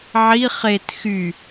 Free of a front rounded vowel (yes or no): no